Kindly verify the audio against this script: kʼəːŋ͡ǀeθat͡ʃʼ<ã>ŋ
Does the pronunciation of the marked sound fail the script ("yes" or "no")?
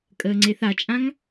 no